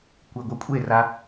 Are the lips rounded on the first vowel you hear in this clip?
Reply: no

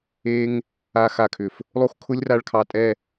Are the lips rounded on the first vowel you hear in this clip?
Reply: no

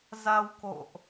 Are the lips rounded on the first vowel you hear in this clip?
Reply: no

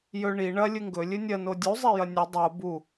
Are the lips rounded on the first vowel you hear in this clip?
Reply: yes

